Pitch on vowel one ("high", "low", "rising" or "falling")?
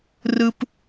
high